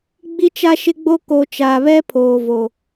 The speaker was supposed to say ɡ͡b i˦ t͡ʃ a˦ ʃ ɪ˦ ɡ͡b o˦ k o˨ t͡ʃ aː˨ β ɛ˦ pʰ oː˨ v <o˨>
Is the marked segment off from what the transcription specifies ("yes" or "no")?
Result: no